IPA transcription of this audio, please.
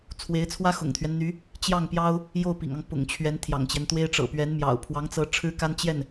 t͡sʰ w e˧˥ ɪ̯ t͡sʰ w ä˥ x ʊ̰˨˩ ŋ t̪ʰ ɥ ɛ˦ n n̪ y˧˥ | t͡ɕ j ɑ˥˩ ŋ p j ɑ˥ ʊ̯ | j o˥˩ ʊ̯ p ḭ˨˩ ŋ ɑ˦ ŋ p ʊ̰˨˩ ŋ t͡ɕʰ ɥ ɛ˧˥ n t̪ʰ j ɑ̰˨˩ ŋ t͡ɕ j ɛ˦ n t̪ w e˥ ɪ̯ ʈ͡ʂ ɤ̰˨˩ p ɥ ɛ˧˥ n m j ɑ̰˨˩ ʊ̯ pʰ w ɑ˧˥ ŋ t͡s ɤ˧˥ ʈ͡ʂʰ ɻ̩˥ k a˥ n t͡ɕ j ɛ˥˩ n

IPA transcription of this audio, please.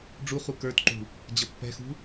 ɖ͡ʐ u χ u k ə˞ t ǃ ṳ | d͡ʑ ʌ pː ɛ̤ x ṳ

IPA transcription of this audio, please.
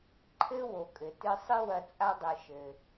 ǃʰ ɘ˦ w o˨ kʼ ɘ˨ t ɨ˧ sˤ ɨ˦ w ɐ˧ t͡sʼ a˦ dˤ ɘ˧ ʃ ɘ˧

